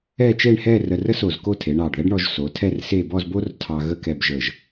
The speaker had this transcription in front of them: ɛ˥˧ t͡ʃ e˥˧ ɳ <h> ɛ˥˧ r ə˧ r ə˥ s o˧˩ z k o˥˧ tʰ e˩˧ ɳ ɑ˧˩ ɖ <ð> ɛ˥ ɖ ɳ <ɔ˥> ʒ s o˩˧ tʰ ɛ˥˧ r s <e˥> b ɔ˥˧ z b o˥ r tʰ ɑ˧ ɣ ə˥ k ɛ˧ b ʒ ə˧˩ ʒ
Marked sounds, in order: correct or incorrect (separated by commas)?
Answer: correct, correct, incorrect, incorrect